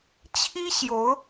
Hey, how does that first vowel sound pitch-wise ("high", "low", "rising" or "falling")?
high